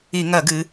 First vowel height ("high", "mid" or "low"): high